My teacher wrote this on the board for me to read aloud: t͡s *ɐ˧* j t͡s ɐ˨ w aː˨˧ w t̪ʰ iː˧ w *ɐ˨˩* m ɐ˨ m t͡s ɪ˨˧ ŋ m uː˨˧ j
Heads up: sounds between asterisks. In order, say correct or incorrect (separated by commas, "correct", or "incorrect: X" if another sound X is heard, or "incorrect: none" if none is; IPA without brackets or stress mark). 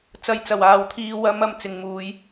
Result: correct, incorrect: ɐ˨˧